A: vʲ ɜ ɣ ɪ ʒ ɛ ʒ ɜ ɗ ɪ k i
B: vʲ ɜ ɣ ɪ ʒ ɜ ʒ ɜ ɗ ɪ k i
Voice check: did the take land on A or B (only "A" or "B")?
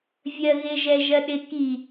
A